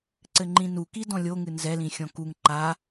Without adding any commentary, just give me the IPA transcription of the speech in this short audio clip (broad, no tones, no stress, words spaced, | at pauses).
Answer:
ǀɘŋ͡ǃĩnu kidɔ̃lʲoŋɨ nzɛlĩ xʲɔ̃kuŋ ǃa